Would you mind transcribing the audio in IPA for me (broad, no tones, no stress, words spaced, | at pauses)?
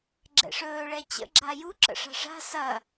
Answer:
ɡ͡ǁɛ̰ʂɵː ɭɛt͡ɕə̰ ɡ͡ǁaju ǁə̰ʂa̤ʂa̤ sɐ